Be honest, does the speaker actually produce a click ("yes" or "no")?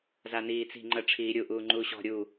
yes